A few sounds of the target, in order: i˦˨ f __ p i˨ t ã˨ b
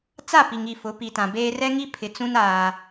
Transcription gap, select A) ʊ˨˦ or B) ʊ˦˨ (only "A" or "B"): A